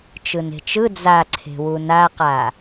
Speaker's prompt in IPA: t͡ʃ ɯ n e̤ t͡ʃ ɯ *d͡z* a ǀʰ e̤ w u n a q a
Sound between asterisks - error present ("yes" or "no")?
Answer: no